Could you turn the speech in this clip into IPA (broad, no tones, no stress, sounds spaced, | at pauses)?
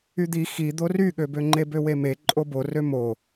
y d̪ i x i d̪ o r y ɠ ø b ø ŋ͡ǃ e b ø w e m e ǃʼ o b o r ø m o